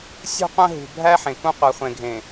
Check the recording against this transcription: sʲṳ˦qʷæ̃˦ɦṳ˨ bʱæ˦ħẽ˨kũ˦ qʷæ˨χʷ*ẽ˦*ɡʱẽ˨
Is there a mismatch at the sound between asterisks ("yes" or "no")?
yes